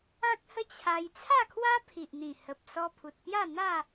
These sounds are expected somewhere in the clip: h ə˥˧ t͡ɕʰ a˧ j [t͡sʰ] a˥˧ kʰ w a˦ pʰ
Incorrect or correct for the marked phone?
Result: correct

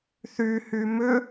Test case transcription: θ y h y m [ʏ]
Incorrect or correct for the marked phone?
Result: correct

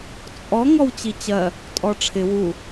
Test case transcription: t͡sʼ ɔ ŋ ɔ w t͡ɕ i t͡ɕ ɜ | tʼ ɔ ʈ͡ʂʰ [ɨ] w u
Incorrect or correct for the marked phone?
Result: incorrect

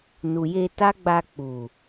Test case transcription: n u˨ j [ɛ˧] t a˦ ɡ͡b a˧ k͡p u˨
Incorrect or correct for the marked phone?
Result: incorrect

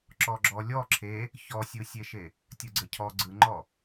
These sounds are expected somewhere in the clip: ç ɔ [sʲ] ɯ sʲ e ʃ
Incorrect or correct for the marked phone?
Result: correct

